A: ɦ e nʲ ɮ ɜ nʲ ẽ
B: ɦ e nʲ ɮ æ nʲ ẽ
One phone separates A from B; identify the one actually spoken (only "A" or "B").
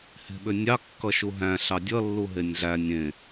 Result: B